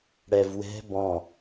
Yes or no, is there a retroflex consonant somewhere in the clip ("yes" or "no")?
yes